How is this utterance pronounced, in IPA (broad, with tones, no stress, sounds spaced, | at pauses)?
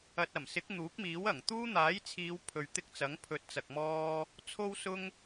ɐ˨ t̚ ɐ˨˩ m s ɪ˨˥ k̚ n̪ uː˨˥ k̚ m iː˨˥ w ɐ˨˩ ŋ t̪ uː˥ n̪ aː˨˥ j t͡sʰ iː˨˧ w pʰ ɵ˨ ɥ t̪ ɪ˥ k̚ t͡s ɐ˨˥ ŋ pʰ ɵ˨˥ t̚ t͡s ɐ˨ k̚ m ɔː˥ | t͡sʰ o˥ w s ʊ˥ ŋ